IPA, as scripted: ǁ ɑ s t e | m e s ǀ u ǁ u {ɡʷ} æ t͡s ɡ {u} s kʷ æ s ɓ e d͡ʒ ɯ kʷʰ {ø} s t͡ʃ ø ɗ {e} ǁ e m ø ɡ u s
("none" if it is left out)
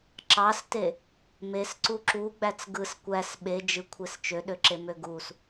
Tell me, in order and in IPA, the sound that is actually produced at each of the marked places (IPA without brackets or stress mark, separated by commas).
ɡ͡b, ɯ, e, ø